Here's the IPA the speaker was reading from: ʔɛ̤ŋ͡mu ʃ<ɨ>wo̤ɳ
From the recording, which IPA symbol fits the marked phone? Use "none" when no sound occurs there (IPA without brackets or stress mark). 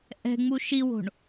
i